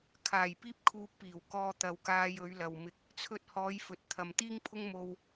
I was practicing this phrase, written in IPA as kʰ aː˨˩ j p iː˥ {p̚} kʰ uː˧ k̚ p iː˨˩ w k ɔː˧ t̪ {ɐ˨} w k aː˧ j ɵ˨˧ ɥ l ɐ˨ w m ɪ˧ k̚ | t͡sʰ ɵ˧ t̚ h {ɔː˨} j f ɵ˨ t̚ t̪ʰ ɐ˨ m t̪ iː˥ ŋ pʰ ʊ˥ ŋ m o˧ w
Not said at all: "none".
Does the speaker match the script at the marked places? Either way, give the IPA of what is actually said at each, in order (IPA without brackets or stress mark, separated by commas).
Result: p̚, ɐ˨, ɔː˨˧